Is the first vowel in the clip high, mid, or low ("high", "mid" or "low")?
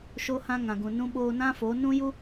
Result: mid